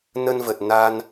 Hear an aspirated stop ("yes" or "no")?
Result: no